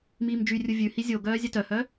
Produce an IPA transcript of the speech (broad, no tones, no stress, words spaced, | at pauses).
miːmd͡ʒyrʲu vʲʉ hizʲoɡœː zʲœtœhœ